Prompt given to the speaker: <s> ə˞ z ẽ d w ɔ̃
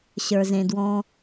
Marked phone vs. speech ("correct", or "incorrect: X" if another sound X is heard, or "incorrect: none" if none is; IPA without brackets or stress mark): incorrect: ɕ